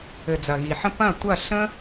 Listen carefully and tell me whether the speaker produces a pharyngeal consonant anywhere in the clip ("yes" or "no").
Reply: yes